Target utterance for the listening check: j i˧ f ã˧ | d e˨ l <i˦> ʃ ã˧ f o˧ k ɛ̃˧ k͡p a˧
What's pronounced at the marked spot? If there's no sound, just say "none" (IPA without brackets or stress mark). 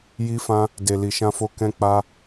i˨